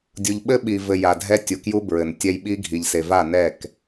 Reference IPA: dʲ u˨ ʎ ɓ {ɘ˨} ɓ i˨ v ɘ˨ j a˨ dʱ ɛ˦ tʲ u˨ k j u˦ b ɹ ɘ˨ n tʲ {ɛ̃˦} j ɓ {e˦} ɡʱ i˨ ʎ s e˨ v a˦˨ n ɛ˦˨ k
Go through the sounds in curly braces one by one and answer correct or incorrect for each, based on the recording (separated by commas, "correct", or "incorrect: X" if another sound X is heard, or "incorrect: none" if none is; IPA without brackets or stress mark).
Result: incorrect: ɘ˦, incorrect: ɛ˦, incorrect: i˦